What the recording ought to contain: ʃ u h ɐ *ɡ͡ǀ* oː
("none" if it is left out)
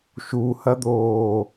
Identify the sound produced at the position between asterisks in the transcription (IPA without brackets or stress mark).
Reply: d̪